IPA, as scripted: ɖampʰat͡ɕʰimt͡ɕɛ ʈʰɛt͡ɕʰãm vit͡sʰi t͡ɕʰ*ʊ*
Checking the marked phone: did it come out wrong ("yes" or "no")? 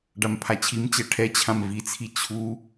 yes